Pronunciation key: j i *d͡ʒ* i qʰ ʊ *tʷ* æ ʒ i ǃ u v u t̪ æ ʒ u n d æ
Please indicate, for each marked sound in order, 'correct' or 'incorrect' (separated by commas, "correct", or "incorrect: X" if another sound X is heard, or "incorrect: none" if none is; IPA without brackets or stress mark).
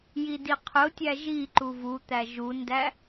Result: incorrect: d, incorrect: tʲ